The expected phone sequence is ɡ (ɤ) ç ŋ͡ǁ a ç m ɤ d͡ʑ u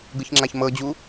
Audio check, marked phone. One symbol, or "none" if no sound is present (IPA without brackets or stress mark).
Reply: ɯ